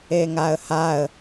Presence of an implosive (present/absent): absent